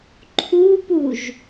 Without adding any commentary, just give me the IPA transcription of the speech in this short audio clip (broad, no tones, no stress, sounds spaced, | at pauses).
ǃʰ u p u ʒ